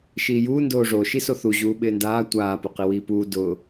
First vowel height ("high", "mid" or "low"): high